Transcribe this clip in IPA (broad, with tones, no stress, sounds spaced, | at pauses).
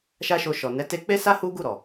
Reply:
ʃ a˦ ʃ o˧ ʃ ɔ˨ n ɛ˨˦ t e˧ k͡p e˦ s a˦ h u˦ ɡ u˦˨ ɾ ɔ˨